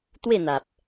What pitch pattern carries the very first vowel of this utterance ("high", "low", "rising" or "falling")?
falling